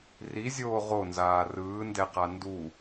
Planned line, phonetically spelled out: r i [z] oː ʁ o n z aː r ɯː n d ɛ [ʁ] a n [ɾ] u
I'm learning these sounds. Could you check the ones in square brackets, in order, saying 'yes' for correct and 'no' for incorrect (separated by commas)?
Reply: no, no, no